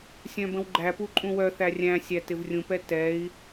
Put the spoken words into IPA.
sʲ œ̃ b ə̃ w ɡ͡ǃ æ p u ǃʼ ũ w œ θ æ rʲ æ̃ sʲ æ t ɪ v rʲ ũ p ɛ t ɛ i̯

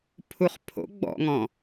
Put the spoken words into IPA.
pʰ u χ pʰ o̰ ɡ͡b ɔ̰ ŋ ɔ̃

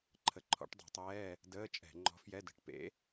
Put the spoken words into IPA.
ǃʰ ə˨˥ ǃʰ ɔ̰˨˥ ʈ dˤ ṳ˧˩˧ tˤ ɛː˧˥˧ | d əː˧˥˧ t͡ʃʼ ɛ̤˧˩˧ ŋ͡ǃ ɔ̤˨˥ f j ɛ˧˥˧ d ə̤˧˩˧ ʈ p ḛ˨˥

